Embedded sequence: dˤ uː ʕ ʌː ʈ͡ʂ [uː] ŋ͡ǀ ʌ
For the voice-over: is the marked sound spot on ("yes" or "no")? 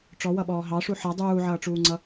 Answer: yes